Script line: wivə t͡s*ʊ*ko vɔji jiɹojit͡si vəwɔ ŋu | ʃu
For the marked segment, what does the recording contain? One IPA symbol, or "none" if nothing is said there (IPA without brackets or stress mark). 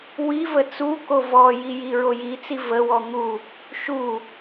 u